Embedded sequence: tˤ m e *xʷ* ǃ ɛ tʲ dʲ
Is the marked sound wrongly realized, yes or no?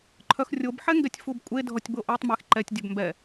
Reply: yes